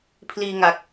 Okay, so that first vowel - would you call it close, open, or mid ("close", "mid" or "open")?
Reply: close